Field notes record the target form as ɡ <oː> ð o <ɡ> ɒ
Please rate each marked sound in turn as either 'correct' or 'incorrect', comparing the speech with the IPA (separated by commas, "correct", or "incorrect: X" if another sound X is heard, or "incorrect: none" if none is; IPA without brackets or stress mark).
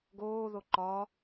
correct, incorrect: ǃ